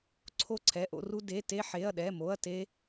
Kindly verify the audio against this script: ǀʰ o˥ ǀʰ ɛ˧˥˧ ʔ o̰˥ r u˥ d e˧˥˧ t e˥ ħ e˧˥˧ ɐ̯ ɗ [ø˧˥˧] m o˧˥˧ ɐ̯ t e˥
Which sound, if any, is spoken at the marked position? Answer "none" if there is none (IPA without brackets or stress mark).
ɛ˧˥˧